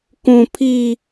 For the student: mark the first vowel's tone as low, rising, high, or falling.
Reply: high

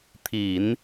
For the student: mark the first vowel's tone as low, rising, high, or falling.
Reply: low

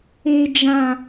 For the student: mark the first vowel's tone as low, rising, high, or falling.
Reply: high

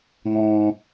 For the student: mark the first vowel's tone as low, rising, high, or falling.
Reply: high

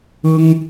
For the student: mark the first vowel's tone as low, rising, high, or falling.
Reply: high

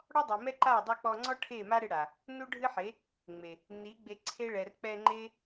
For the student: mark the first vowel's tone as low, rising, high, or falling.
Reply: high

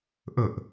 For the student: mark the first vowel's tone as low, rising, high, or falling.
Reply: falling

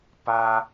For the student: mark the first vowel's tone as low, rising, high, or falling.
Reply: high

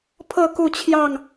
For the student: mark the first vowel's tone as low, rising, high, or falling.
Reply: falling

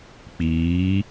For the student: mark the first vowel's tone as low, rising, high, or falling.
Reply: rising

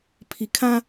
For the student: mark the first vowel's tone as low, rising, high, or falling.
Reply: low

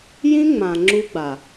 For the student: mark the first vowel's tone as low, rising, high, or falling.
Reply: high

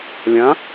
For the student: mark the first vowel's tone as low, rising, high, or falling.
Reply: rising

